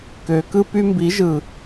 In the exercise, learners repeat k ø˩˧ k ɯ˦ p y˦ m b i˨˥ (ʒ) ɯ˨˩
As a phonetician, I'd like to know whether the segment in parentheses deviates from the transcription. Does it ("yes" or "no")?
no